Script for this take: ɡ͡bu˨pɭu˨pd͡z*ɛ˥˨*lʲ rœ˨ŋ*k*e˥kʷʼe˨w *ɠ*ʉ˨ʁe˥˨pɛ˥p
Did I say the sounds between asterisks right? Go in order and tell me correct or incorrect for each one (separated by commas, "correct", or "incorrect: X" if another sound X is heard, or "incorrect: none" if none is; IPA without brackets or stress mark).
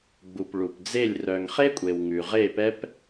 incorrect: e˥˨, incorrect: χ, incorrect: ŋ